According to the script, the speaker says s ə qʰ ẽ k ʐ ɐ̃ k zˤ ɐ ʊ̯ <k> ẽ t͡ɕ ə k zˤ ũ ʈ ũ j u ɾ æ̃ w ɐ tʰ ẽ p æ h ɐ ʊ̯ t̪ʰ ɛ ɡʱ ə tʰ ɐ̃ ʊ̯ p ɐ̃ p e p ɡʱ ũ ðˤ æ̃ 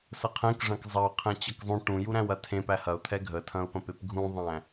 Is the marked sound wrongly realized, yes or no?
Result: yes